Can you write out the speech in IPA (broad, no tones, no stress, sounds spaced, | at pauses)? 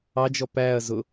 ɑ d͡ʒ ɔ p æ ɐ̯ z ʊ